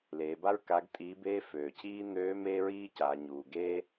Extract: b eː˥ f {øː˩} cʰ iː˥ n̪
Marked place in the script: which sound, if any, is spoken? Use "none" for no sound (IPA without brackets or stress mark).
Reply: øː˩